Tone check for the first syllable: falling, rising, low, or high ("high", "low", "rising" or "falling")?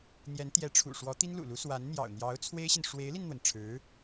rising